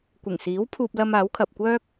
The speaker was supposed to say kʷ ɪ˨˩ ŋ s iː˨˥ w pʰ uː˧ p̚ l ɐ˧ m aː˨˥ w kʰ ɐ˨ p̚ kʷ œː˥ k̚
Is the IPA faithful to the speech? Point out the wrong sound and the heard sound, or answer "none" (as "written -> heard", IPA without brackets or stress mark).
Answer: none